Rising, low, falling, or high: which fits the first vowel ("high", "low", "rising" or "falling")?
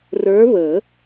rising